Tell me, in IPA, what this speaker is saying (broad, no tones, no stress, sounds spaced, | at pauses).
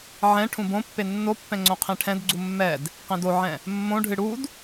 ʕ ɛ̃ ʈʰ ũ b õ pː e nː o pː ɛ̃ ŋ͡ǀ õ qʰ ẽ ʈʰ ɛ̃ d ɡ͡ǀ u mː ɛ d | q ẽ d o ʕ ɛ̃ | mː õ ɖʱ ɨ ɽ u d